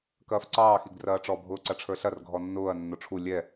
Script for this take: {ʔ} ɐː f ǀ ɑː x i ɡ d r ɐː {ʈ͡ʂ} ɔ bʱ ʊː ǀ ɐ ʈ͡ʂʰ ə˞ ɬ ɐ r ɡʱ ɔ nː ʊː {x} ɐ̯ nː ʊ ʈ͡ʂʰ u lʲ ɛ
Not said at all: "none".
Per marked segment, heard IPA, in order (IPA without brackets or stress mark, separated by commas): k, ʈ͡ʂ, none